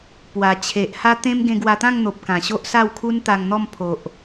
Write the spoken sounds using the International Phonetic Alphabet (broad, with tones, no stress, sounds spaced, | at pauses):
p w a˨˩ t͡ɕʰ e˨ ʔ h a˧ t̪ ẽ˧ m ɡ ẽ˧ ɡ w a˧ t̪ ã˥˧ ŋ n̪ o˨ p̚ k ã˨˩ ɕ o˦ ʔ s a˥˧ w kʰ u˦ n t̪ a˧ ŋ n̪ ɔ˥˧ m pʰ o˨ ʔ